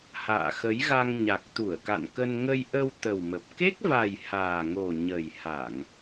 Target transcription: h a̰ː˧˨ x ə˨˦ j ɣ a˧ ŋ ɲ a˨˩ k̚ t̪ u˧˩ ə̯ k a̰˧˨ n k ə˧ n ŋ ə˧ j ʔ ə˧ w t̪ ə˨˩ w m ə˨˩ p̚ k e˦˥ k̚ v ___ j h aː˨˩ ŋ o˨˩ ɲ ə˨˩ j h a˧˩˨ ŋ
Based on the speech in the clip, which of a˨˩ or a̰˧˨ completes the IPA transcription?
a˨˩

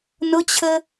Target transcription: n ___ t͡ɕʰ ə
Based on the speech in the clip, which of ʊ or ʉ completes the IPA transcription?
ʊ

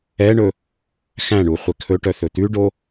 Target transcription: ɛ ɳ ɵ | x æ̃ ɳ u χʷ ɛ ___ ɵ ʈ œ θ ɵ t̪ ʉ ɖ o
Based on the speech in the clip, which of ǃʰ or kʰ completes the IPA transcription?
kʰ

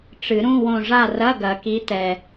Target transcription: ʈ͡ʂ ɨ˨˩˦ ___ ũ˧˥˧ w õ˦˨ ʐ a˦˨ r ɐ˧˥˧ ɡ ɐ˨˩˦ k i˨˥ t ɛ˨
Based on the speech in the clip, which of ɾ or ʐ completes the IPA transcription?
ɾ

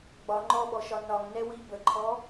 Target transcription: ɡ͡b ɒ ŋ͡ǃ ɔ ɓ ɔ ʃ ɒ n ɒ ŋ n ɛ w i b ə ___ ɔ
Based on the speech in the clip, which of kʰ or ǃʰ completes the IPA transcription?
ǃʰ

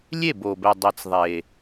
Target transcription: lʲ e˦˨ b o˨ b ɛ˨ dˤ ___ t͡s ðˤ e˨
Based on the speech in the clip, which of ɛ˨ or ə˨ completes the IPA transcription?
ɛ˨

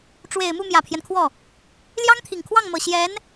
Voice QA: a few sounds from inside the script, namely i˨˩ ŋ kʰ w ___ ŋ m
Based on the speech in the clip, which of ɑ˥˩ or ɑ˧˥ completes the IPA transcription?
ɑ˥˩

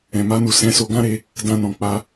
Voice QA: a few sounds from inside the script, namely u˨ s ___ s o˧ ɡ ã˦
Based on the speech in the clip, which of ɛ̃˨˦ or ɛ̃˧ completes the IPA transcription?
ɛ̃˨˦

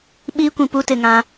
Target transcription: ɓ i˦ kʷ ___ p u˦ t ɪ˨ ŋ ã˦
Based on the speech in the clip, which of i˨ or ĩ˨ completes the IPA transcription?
ĩ˨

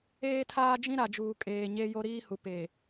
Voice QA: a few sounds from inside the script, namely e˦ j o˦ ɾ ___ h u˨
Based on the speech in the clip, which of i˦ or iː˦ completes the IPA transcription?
iː˦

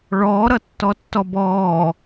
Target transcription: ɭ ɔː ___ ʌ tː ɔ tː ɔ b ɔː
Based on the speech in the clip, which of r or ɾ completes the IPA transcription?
ɾ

